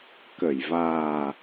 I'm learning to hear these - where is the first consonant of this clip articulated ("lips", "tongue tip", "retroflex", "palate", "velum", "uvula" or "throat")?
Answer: velum